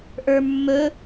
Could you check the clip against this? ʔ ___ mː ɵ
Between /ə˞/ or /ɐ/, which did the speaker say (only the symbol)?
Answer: ə˞